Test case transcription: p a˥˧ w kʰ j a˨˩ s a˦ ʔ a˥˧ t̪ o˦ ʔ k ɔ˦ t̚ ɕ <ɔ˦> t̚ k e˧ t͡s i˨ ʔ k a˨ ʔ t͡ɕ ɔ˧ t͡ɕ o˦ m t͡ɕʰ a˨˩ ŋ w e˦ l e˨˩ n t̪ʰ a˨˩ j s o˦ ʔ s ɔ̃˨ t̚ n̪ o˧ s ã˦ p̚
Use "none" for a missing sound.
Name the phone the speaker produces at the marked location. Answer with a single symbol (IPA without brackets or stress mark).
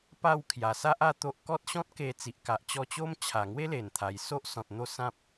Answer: ɔ̃˦